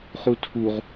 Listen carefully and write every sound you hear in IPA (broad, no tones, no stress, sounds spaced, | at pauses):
χ u tʰ u ʁ